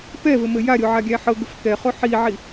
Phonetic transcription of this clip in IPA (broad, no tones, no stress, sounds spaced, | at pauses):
p ɛ v ɘ m ɘ j a ɾʲ o ʕ a ɡʲ æ ħ ɤ ɡ ɘ f k ɛ χ o ħ i ʕ i